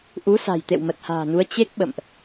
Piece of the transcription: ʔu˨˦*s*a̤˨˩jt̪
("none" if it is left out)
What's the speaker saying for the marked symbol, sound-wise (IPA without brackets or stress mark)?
s